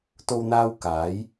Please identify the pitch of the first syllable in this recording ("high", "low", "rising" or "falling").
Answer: high